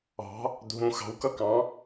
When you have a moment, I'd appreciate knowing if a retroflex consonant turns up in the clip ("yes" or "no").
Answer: no